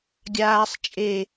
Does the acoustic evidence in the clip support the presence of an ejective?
yes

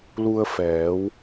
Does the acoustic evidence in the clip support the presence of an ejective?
no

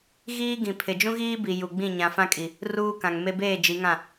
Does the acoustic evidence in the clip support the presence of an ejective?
yes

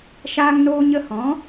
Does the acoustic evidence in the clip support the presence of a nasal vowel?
yes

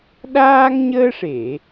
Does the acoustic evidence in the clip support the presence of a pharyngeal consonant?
no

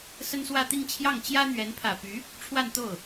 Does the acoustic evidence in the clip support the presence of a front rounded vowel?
yes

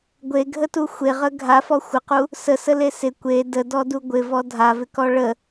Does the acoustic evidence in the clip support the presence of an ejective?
no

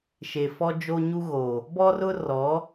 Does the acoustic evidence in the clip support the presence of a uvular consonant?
no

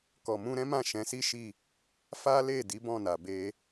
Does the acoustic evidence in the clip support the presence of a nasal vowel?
yes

